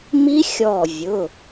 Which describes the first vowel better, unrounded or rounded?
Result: unrounded